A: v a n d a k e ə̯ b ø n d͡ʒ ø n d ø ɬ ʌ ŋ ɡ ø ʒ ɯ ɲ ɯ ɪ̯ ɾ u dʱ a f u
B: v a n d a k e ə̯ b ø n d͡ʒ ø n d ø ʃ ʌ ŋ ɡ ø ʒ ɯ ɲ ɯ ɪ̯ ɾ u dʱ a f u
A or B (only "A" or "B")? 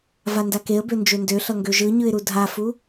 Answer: A